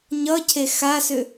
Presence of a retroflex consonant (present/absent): absent